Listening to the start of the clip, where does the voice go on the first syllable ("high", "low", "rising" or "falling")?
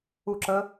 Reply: falling